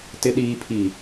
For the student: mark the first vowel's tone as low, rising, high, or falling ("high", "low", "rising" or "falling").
low